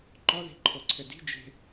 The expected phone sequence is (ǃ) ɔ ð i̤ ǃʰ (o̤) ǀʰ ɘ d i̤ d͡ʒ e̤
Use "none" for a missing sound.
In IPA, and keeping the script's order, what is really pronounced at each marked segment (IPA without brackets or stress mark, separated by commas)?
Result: ǃ, o